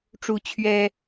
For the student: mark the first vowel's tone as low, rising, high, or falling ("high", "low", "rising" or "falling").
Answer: rising